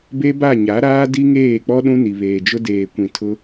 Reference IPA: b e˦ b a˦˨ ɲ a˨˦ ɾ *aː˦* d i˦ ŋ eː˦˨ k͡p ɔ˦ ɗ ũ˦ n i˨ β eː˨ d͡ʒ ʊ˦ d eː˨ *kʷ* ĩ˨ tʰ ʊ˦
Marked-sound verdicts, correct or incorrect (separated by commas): correct, correct